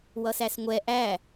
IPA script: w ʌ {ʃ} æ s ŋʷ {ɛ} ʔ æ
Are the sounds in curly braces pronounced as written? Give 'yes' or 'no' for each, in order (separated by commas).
no, yes